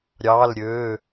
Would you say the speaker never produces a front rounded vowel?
no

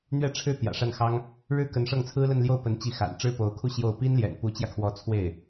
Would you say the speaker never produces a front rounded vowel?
yes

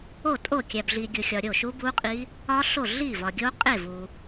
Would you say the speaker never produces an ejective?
no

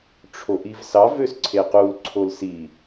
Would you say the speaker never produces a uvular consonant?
no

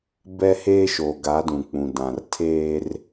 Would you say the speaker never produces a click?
yes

